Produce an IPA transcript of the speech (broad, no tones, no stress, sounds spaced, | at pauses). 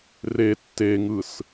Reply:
r e tː e ŋ ɯ s